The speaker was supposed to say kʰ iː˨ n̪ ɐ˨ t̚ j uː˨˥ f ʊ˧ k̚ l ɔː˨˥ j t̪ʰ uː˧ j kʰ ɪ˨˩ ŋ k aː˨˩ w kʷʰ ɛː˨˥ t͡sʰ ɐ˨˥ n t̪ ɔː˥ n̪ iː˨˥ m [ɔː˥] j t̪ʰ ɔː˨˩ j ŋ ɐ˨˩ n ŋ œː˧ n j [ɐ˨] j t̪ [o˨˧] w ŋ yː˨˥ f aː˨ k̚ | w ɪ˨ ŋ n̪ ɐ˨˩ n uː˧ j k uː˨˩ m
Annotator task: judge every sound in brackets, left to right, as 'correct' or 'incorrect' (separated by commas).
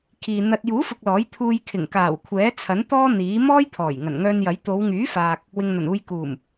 correct, incorrect, correct